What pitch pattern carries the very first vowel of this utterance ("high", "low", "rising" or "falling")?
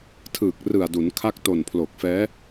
low